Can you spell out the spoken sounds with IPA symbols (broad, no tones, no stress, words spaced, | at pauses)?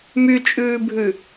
myt͡ʃʼʉːbʱʉ